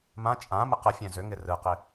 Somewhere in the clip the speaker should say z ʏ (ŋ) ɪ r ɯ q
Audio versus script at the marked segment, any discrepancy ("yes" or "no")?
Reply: no